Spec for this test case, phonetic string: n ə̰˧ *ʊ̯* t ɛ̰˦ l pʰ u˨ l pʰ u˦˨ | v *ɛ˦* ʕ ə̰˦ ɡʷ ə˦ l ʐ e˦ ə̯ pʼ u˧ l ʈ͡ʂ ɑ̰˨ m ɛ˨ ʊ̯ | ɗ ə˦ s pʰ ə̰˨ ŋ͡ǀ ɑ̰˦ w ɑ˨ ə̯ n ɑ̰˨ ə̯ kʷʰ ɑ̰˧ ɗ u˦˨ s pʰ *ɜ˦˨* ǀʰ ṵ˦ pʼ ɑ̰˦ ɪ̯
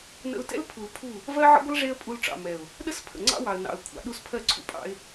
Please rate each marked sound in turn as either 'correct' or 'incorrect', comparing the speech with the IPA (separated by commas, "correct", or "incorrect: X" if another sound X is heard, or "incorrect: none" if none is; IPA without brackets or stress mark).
correct, incorrect: ɜ˦, correct